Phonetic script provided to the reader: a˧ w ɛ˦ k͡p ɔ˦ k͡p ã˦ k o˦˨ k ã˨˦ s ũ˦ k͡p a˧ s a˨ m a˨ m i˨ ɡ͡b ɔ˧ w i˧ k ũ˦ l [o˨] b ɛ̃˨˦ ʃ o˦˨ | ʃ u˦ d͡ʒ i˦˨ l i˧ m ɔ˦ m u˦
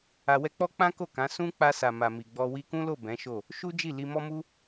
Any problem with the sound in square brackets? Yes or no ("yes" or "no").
yes